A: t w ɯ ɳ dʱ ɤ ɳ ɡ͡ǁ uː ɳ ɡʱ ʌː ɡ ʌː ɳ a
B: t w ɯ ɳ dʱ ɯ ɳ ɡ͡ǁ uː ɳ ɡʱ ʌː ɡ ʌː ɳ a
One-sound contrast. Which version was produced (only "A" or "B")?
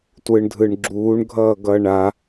B